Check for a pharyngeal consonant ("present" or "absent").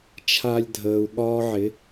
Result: present